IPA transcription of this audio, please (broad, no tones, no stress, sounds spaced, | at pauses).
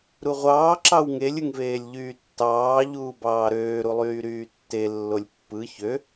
ɾ u ʁʷ ɑː ǁ ɑ w ŋ e lʲ ɯ ŋ v eː lʲ ʎ yː tː ɑː ʎ uː b ɑː ɾ øː ɾ u lˠ yː ɾ yː tː e lː o lʲ pː ɯ ç ø